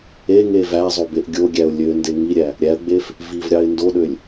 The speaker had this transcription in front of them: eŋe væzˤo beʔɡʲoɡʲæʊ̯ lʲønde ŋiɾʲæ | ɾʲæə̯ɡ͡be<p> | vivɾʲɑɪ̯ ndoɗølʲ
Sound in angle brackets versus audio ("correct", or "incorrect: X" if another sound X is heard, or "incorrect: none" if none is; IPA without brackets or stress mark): incorrect: f